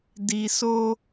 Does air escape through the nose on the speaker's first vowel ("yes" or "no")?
no